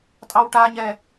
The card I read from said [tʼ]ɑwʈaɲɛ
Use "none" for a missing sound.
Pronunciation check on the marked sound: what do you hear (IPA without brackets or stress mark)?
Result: tʼ